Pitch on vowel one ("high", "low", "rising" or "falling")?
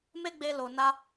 high